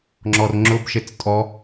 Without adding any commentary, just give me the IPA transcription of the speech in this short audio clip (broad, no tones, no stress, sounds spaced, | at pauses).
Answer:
ŋ͡ǁ ɔ r ŋ͡ǁ ʊ b ʃ e t͡s tʼ ɔ